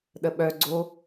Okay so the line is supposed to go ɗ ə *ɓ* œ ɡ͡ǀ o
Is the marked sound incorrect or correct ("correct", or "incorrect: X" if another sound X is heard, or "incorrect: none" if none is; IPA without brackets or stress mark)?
correct